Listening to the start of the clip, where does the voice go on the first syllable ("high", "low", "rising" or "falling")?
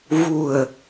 low